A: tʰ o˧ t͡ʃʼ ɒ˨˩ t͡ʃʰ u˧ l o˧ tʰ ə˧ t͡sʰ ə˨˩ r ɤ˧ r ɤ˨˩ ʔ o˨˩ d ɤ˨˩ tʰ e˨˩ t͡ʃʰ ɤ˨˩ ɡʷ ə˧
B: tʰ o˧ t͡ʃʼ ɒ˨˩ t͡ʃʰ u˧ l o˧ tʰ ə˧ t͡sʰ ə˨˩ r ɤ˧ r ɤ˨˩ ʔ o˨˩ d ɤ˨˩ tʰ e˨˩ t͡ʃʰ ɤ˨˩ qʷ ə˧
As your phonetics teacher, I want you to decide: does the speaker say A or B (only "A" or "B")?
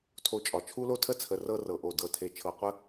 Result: B